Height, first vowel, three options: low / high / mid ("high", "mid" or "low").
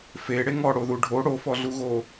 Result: mid